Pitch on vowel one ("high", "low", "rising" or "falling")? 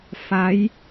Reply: rising